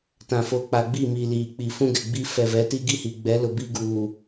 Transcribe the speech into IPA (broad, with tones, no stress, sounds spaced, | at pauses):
t ã˨ f o˨ k͡p a˨ ɡ͡b i˦˨ m i˨ l iː˨ k͡p i˨ f ũ˦ ɡ ɛ˨ ɡ͡b i˦ f ɛ˨ v ɛ˨˦ t i˦ ɡ i˦ h i˨ ɡ͡b ɛ˨˦ l ʊ˨ b i˦ ɡ uː˨